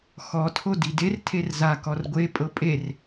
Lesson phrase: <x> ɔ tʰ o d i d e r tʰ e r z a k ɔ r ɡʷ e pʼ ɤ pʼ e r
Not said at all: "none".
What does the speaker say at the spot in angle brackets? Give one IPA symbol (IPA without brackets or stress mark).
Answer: x